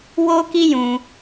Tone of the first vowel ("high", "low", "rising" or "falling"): high